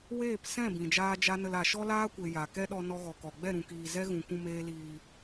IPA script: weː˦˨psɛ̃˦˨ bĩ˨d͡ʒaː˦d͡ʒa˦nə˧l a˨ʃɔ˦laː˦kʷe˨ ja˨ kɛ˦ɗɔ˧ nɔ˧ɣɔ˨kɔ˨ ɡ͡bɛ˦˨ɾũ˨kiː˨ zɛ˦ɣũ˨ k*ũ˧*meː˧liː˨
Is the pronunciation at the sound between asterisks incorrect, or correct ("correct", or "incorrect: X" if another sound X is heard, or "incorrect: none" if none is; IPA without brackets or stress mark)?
correct